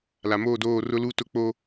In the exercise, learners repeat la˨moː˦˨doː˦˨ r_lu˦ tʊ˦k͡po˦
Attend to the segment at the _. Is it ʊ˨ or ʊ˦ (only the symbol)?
ʊ˦